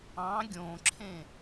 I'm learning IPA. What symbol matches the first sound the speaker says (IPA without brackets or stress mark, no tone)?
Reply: ɑ̃